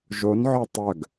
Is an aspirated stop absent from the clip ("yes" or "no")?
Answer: yes